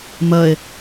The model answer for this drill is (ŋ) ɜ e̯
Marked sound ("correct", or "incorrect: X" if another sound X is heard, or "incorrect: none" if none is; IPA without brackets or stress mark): incorrect: m